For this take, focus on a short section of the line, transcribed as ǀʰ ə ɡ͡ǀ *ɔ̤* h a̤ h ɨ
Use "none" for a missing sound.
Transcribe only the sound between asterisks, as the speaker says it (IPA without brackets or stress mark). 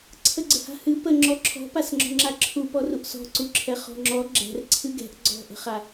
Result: ə̤